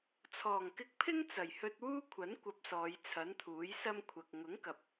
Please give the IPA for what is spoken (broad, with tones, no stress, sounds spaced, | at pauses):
t͡sʰ ɔː˨˩ ŋ k ɪ˧ k̚ pʰ ɪ˥ ŋ t͡s ɐ˨˩ j h ɵ˧ t̚ w uː˥ kʷʰ ɐ˨˥ n kʷ ɐ˧ p̚ s ɔː˨˧ j t͡sʰ ɐ˨˥ n t̪ʰ uː˨˥ j s ɐ˥ m kʷʰ ɐ˨ k̚ ŋ ʊ˨˥ ŋ k ɐ˨ p̚